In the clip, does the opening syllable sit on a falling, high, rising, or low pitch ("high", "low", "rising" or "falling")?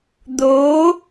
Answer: rising